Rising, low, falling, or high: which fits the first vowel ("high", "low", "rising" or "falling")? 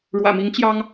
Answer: low